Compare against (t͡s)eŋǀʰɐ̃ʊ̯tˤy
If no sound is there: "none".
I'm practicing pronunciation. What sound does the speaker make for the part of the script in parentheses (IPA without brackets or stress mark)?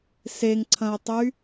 s